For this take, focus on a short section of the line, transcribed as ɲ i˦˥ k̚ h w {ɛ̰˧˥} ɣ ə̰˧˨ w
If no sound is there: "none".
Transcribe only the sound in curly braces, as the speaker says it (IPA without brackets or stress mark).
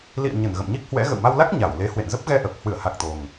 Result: ɛ̰˧˥